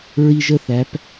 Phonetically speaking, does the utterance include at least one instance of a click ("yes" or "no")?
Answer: no